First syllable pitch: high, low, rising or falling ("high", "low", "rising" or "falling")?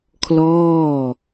falling